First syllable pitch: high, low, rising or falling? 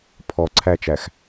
low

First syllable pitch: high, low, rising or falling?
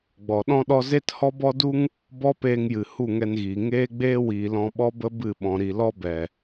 low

